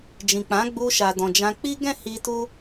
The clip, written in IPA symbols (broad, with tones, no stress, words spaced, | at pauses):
d͡ʒĩ˨k͡pã˨˦ ɡ͡bu˧ʃa˨dɔ̃˨d͡ʒã˧ k͡pi˦ɡɛ̃˦˨ hi˧tu˦